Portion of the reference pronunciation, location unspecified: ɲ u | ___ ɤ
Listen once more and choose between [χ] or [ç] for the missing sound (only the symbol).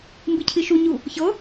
ç